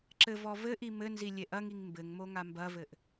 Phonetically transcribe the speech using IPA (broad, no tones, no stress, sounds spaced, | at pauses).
ǁ ɘ v ɔ v ɘ ʔ i m ɘ n z i lʲ e ʔ ɐ ŋ i ŋ m b ɘ ŋ m o ŋ a m b ɐ v ɘ ʔ